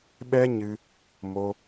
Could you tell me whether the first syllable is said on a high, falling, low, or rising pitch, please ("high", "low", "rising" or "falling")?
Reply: high